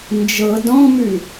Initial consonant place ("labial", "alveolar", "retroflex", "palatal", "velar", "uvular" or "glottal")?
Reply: alveolar